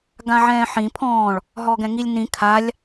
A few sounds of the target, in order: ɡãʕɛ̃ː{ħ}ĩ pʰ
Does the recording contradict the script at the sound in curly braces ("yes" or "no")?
no